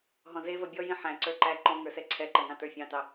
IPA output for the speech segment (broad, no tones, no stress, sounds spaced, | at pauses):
ɦ ɔ̃ z e v ɐ bʲ ɔ j ĩ ħ æ̃ ǀ ə˞ ǃ æ ǃ ɔ̃ ŋ ə˞ s ɛ ǀʰ ɛ ǃ ɐ ŋ ɑ̃ t ə˞ fʲ ɑ̃ t ɑ